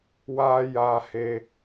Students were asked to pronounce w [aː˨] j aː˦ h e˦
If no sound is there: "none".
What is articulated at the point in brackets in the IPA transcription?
aː˦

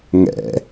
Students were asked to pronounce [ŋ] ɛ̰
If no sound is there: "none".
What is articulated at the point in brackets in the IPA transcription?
ŋ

